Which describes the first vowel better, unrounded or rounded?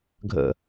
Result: unrounded